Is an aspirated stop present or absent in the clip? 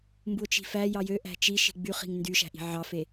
absent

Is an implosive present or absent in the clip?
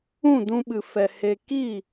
present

